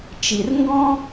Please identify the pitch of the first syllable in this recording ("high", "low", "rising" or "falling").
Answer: low